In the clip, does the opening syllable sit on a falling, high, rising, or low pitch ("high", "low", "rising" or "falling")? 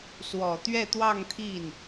low